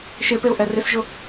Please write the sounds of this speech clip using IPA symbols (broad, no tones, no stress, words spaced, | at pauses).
ʃepeʊ̯ ʔɛrɪsʒʊ